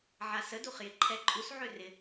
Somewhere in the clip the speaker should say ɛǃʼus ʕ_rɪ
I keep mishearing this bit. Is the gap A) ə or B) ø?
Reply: B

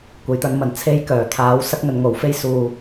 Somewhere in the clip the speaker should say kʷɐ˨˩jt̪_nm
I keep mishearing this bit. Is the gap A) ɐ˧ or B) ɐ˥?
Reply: A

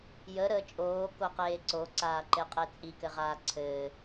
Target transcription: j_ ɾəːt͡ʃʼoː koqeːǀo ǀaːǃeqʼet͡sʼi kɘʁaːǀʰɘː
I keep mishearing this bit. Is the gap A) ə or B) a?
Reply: A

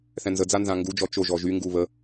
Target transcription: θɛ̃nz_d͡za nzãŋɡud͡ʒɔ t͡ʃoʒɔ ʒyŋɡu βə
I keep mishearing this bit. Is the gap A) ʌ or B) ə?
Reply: B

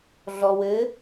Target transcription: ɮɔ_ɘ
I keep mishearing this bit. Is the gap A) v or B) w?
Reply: B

